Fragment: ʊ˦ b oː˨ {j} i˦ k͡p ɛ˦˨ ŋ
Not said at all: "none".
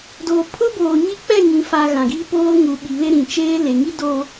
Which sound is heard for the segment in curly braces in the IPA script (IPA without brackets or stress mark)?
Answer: ɲ